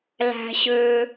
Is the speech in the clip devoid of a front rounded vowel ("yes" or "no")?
no